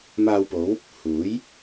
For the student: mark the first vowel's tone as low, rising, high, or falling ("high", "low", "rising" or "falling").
low